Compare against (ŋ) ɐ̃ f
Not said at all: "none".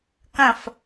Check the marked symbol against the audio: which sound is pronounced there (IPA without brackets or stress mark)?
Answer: k